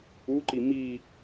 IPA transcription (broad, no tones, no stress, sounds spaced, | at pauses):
u ǃ i m i